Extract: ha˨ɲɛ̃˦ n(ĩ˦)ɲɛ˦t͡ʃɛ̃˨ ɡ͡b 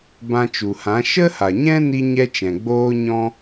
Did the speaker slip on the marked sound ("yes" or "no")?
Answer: yes